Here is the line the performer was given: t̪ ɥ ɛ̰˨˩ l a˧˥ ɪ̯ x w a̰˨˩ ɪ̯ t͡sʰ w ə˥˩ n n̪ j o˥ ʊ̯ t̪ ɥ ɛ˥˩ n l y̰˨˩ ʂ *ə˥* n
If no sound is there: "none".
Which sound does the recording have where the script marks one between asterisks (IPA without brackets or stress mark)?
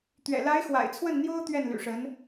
ə˧˥